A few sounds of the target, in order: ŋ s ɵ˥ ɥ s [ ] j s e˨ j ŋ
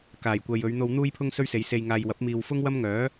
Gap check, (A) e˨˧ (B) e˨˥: A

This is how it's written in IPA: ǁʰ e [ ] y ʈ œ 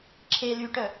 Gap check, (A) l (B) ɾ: A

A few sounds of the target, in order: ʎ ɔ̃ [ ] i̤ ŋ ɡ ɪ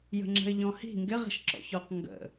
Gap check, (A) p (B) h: B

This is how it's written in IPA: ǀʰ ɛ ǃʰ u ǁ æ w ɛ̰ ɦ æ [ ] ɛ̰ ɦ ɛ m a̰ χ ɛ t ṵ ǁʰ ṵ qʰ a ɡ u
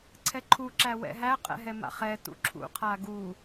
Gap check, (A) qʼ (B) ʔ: A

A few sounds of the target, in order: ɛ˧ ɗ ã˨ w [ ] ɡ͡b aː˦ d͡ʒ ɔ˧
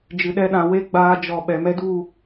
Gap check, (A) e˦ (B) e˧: B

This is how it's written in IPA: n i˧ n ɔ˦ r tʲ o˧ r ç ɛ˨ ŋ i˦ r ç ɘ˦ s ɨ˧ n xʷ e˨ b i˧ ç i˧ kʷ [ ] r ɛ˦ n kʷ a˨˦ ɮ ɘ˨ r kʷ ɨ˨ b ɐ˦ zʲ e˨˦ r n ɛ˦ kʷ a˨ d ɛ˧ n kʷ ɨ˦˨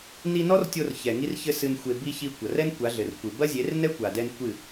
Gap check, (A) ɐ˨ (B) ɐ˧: A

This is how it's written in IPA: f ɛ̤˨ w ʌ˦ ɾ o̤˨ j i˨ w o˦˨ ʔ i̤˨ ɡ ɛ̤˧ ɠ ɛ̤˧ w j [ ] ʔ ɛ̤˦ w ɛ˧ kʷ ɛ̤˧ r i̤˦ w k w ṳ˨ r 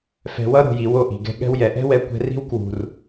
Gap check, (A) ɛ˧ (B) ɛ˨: B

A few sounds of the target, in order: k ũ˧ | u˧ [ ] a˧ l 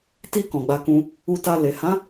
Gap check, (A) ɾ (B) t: B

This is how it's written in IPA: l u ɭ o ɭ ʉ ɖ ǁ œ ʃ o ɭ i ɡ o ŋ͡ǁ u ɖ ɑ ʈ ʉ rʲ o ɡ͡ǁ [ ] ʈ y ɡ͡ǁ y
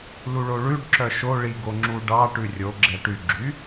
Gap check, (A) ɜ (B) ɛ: B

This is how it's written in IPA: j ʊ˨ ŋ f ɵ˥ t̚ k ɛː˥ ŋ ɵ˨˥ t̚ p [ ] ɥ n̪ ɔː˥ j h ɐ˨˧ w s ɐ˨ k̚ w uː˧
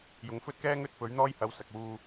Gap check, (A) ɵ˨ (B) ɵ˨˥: B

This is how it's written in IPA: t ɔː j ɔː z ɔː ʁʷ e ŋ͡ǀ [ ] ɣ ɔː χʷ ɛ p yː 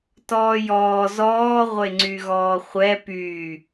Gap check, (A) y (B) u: A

